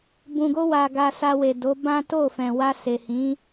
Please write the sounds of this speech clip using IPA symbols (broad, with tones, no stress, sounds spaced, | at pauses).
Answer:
b ũ˨ ɡ o˧ w a˨ ɡ a˧ s a˧ w e˨ d o˨˦ b ã˦ t o˦˨ f ɛ̃˨ w a˧ s e˨ h ĩ˨˦